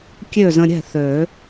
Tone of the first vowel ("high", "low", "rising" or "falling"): falling